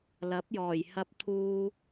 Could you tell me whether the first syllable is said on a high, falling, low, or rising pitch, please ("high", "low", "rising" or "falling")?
rising